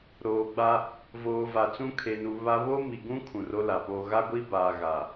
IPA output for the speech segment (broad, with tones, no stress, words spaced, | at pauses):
ɾoː˨ɡ͡ba˦ | voː˨va˨t͡sũ˦kʰe˨ nu˨βa˦ βo˦mi˨ɡũ˦ kʰũ˨ro˦la˨poː˦ ɣa˦ɡʷi˦baː˨ ɣa˨